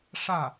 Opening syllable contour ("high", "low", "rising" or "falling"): falling